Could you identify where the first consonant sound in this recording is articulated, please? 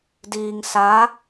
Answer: alveolar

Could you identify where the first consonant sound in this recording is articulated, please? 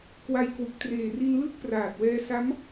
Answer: velar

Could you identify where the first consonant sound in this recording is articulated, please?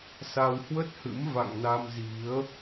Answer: alveolar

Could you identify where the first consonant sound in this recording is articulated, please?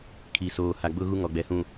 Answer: velar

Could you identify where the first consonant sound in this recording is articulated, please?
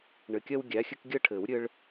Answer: retroflex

